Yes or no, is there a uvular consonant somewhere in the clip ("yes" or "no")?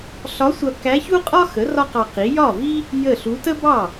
yes